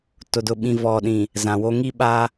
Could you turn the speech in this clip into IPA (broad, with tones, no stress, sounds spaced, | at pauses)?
t ʊ˨ d ʊ˨ ɓ ĩ˨ v ɔ˨ ɗ ĩ˨ | z ã˨ w o˦ ŋ i˦ ɓ a˦